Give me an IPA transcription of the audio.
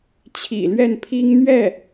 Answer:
t͡ɕʰ ḭ˨˩ l ɥ ɛ˥˩ n pʰ i˥ ŋ n̪ ɥ ɛ˥˩

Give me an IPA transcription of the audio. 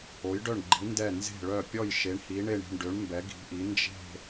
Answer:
o˨˦ j ɖ œ˦˨ ɳ ɡ͡ǃ i˨˦ n d ɛ˦˨ n z e̤˦˨ ɭ œ˦˨ pʲ ɔ˦˨ j ʃ e˨˦ ɳ h i˨˦ ɳ e˦˨ ɳ i̤˦˨ ɳ ɖ ø˨˦ ɳ m b ɛ˨˦ ɡ i̤˨˦ ʔ i˨˦ n d͡ʒ e̤˦˨

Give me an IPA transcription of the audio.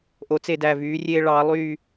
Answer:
ʔ o˩˧ t͡s e˧˩ d æ˧˩ v yː˩˧ rʲ e˧ ɭ ɑː˩˧ lˠ yː˧˩

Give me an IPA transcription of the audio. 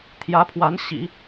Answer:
t̪ʰ j ä˧˥ pʰ w a˧˥ n ɕ ḭ˨˩˦

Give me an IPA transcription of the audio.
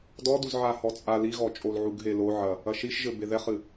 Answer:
d ɔ d u z ʕ a h ɔ t͡sʼ a l i ɣ ɔ t͡ʃʼ o l ʕ u ɡ ɦ e l o ʕ ɐ | ɐ ʃ i ʃ ʒ ɘ b e ð ɛ χ ɨ

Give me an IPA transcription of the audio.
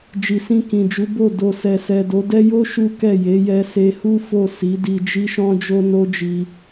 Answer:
d͡ʒ i˨ s ĩ˧ k ĩ˨ d͡ʒ u˨˦ b o˦˨ d o˨ s ɛ˨ s ɛ˨ d o˨˦ d ɛ˦ j o˦ ʃ u˦ k ɛ˦˨ j e˨˦ j ɛ˧ s e˧ h u˦ f o˦˨ s i˨˦ d i˧ d͡ʒ i˦ ʃ ɔ̃˦ d͡ʒ o˦ n o˦ d͡ʒ i˧

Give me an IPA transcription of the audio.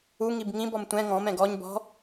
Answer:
u ŋ i b ŋ ĩ b ɔ m tʷ ɛ̃ ŋ ɔ̃ m ɛ̃ ɡ ɔ ɲ b ɔ̤

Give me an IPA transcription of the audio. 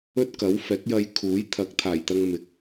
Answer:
ɵ˥ t̚ k ɐ˨˥ w f ɛː˨˥ k̚ j ɐ˧ j kʰ uː˨˥ j t̪ʰ ɐ˨˥ k̚ t̪ʰ aː˨˩ j t̪ ɐ˧ ŋ m ɪ˨˥ k̚

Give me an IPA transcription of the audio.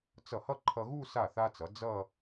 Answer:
t͡s ʌ˧˩ h ʌ˥˧ ǃʰ ʌ˧ ɣ u˥˧ s a˧˩ θ a˧ t͡s ʌ˩˧ d͡z ʌ˥˧

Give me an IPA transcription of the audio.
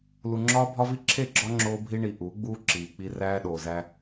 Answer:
l u˨ ŋ͡ǁ ɒː˦ bʱ ɒ˦ v i˦ ǁʰ e˦˨ ɡ͡ǁ ɒ˦ ŋ͡ǁ oː˦ bʱ i˦ ɳ i˨ ʔ uː˨˦ ɡ͡b uː˦ ǁ iː˨ k͡p i˦ r æː˦ ɗ oː˨ z æ˦

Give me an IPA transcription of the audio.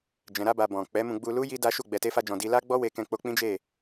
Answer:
d͡ʒ ɛ̃˨ ɾ a˧ b a˨ b ɔ̃˨ k͡p ɛ˨˦ m ũ˧ ɡ͡b u˧ l u˦ j i˦ d a˦ ʃ u˦˨ ɡ͡b ɛ˧ t e˦ f a˦ d͡ʒ ɔ̃˧ d i˧ l a˦ ɡ͡b ɔ˦ w e˧ k ɛ̃˧ k͡p o˧ k͡p ĩ˦ d͡ʒ e˦˨

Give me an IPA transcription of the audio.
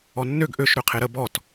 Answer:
ɔ nː ø ɡ ʔ ø ʃ ɾ ø qʰ e ɾ ə b ɔ t

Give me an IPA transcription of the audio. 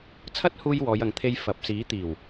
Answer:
t͡sʰ ɐ˥ t̚ h uː˧ j w ɔː˨˧ j ɐ˨ ŋ t̪ʰ e˧ j f ɐ˨ p̚ s iː˨˥ t̪ iː˨˩ w

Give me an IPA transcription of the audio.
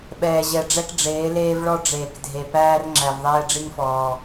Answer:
ɓ ɛː˨ ʑ ɛ˨ ɖ͡ʐ ɛ˦ k ɖ͡ʐ eː˨˦ l eː˦ v ɭ ɔ˦ ɖ͡ʐ eː˨ k dʱ e˨ p æː˦ r ŋ͡ǁ æ˨ v ðˤ ɛː˦ ɖ͡ʐ i˦ ŋ f ɔː˨

